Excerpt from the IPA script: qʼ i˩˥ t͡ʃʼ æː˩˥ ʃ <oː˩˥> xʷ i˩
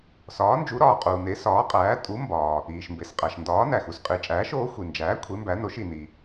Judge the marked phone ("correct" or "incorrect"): correct